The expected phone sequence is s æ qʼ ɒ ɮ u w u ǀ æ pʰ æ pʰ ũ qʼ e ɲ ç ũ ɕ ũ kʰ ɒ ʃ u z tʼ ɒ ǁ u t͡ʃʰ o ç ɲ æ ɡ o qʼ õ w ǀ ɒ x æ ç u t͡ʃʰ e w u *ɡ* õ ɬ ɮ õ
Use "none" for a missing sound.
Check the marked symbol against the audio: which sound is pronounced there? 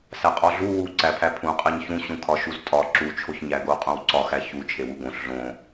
ɡ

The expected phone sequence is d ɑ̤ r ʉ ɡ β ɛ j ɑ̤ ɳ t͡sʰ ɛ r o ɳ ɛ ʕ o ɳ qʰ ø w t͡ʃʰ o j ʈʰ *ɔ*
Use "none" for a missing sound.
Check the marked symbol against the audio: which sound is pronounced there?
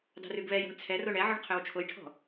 ɔ̤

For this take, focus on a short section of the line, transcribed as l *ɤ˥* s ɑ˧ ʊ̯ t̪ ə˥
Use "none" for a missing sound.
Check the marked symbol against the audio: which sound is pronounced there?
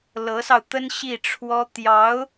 ɤ˧˥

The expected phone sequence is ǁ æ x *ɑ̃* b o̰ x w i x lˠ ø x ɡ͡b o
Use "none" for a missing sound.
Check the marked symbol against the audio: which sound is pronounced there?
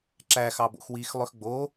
ɑ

